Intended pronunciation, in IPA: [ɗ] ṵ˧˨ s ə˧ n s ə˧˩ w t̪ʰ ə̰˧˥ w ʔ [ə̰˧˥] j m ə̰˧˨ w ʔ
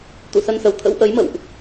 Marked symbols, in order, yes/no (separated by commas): no, no